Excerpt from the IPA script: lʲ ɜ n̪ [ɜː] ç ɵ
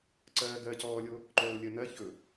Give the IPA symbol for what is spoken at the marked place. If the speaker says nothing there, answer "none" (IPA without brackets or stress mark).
ɜ